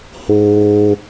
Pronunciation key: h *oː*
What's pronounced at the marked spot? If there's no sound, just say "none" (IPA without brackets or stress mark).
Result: oː